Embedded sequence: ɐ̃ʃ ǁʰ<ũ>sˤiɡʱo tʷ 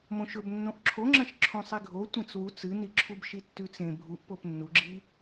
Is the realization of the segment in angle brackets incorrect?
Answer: yes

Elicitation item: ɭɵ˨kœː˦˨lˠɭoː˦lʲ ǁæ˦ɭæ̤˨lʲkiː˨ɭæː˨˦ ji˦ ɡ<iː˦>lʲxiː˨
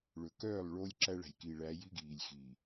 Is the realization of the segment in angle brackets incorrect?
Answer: yes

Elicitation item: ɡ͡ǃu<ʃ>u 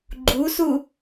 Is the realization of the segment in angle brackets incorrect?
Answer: yes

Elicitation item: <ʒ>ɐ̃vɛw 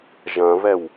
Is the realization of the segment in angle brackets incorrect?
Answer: no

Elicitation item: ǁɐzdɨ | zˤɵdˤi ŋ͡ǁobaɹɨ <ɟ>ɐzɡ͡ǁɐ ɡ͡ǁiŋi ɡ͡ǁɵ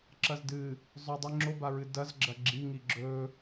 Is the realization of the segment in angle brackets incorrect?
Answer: yes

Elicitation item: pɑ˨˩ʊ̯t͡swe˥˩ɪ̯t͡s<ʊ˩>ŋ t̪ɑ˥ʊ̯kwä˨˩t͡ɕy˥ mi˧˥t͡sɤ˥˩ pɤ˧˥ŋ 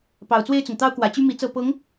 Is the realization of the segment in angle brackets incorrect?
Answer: no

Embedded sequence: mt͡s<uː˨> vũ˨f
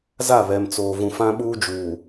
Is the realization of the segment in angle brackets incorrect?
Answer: yes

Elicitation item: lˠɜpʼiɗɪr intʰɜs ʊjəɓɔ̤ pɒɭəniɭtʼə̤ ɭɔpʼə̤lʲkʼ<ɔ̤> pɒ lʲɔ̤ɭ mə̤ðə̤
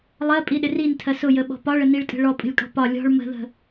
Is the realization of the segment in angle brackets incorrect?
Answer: no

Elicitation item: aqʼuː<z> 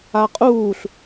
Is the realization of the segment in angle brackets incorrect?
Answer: yes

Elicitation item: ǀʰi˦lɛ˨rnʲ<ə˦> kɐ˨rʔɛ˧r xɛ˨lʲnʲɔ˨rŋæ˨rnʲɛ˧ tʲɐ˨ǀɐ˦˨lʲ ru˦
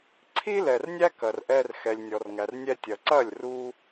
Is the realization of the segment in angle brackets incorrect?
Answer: yes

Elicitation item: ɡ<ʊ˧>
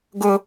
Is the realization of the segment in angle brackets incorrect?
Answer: no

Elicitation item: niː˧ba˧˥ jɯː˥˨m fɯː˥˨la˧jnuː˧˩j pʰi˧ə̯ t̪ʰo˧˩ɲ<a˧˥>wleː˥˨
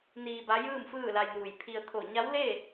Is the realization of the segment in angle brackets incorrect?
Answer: no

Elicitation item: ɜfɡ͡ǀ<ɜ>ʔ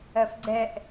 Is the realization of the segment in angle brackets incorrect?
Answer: yes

